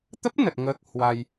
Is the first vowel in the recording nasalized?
no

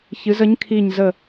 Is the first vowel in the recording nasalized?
no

